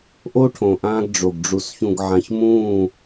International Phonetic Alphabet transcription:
ʔo˦ʈʰõ˨ ʔãː˦ɡɖ͡ʐo˨ɡ ɖ͡ʐu˨s çũ˨ɡʕã˨çmũː˦˨

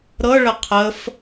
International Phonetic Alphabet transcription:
ɾɤɭə qʰəf

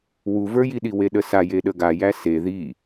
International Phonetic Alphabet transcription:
wuvə˞jiɗi weɗəsa jeɗəɡa jæse ði

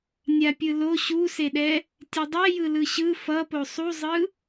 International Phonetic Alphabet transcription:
nʲapʲɯlo ɕuseɗɛ | tʲedˤɛjɯ lɯɕɯ fʌpo sˤuzˤɯ

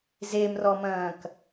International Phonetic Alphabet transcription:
zemrɔmɐ̃ːk

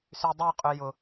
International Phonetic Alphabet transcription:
sydˤøqʼø jʊ

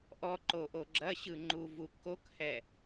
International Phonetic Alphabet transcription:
ʔɔǃoʔo ɡ͡ǁɐɕɯŋ͡ǃuvu kokhɛ

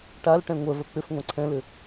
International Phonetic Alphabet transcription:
ʈalʈɛ̃ ŋʷɜvɜ k͡pʏf ŋʷãǀʰɛ̃lʏ

